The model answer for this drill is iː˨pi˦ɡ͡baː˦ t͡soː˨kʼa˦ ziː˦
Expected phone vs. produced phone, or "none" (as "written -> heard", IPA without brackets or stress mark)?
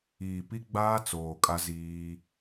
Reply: none